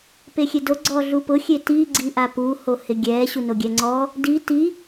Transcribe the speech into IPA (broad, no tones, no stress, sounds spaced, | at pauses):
p e xʲ e d o ɡ͡ǀ ɔ ɮ u p ʊ xʲ e t i ɡ͡ǀ i ʔ a p u h o h ɪ ɡʲ ɛ ɕ u n o ɡʲ ɛ ŋ͡ǀ ɔ | d i t i